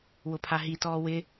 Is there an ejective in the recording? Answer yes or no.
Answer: no